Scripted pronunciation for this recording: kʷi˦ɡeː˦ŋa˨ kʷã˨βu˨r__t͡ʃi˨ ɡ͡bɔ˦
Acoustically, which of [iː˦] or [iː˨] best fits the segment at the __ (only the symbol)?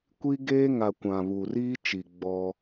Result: iː˦